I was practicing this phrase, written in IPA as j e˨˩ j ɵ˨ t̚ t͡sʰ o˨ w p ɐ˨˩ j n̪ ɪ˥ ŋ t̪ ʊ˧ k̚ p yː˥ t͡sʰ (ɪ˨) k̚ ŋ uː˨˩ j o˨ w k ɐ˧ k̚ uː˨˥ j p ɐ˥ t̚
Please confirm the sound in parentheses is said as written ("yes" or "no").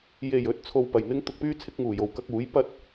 no